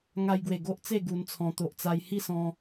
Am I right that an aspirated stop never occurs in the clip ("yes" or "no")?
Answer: no